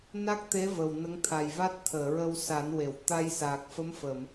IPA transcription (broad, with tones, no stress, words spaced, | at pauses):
na˦˥k̚t̪e˧˥ və˨˩wnə˧˥ŋt̪ʰa˨˩jva˦˥t̚ t̪ʰəː˨˩˨ɹə˧wsa˨˩˦nwe˨˩˨w t̪a˧jsaː˨˩k̚fə˧˥mfə˨˩˨m